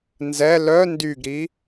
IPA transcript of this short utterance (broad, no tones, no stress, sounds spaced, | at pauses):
n z ɛ l œ n d y ɡ ɾ i